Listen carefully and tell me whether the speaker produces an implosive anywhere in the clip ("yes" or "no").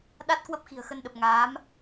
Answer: yes